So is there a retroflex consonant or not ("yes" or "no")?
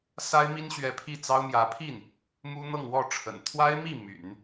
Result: yes